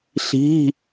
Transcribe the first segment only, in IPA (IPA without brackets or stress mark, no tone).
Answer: ɬ